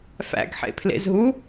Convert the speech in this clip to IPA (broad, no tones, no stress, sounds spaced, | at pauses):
f æ̰ ɡ ħ ḛ pʰ l ḛ z ɦ u